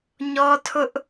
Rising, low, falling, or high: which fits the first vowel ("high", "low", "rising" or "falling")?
high